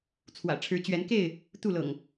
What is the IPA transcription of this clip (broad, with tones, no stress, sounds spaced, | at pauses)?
t͡sʰ w ä̰˨˩ ʈ͡ʂʰ ɻ̩˨˦ t͡ɕ ɥ ɛ˨˦ n k e˥˨ ɪ̯ | t̪ u˥˨ l ɤ̰˨˩ ŋ